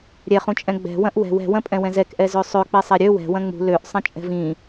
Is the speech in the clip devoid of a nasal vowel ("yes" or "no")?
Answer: no